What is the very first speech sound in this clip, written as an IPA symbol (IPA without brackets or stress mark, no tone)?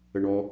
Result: ə